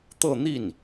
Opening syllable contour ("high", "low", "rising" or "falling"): falling